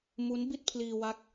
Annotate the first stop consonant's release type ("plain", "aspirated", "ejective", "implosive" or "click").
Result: plain